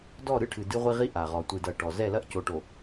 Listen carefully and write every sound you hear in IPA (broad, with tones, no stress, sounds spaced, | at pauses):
d ɔ˦˨ ɾ ɨ˦ ʈʰ ɨ˨ d ɨ˦ ʁʷ i˦ ʁ i˦ ʔ a˨ ʁ ɔ˨ tʷ ɨ˨ d ɐ˨ ʈ ɔ˨ z ɛ˦˨ l ɐ˦ ʔ c o˨ ʈ o˨